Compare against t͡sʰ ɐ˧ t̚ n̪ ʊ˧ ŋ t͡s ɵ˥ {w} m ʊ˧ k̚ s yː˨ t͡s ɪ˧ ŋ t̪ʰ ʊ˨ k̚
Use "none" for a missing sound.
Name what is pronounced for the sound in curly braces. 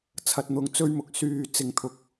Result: ɥ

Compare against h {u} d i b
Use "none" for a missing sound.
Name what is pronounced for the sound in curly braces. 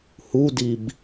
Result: u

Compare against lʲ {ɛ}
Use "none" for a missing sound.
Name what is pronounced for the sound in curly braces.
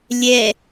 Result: ɛ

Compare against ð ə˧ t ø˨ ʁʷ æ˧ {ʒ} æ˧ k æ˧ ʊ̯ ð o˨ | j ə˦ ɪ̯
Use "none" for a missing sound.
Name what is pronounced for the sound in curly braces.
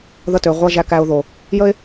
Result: ʒ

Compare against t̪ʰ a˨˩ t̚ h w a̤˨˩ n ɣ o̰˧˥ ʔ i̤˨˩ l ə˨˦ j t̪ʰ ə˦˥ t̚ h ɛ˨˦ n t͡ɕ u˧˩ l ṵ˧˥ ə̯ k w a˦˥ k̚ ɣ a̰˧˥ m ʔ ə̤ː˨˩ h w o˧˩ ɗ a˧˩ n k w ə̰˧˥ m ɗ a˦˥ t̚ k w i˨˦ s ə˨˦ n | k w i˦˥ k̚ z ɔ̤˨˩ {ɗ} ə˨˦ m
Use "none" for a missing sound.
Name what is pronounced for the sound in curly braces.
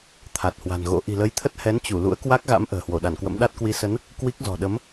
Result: ɗ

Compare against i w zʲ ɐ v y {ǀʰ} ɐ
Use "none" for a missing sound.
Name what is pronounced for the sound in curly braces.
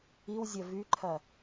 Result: ǃʰ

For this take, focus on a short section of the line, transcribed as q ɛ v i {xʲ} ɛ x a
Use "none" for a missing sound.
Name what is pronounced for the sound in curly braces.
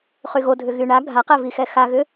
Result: x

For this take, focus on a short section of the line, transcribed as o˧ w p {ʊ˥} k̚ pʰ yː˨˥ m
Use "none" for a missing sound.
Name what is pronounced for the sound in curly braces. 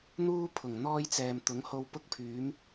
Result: ʊ˥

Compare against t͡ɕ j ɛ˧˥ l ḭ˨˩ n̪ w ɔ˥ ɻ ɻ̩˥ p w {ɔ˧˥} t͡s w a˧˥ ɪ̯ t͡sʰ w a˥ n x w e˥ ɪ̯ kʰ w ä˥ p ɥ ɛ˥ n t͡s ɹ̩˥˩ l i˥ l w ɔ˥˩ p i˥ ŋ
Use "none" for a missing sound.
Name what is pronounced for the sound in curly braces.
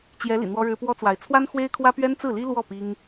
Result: ɔ˥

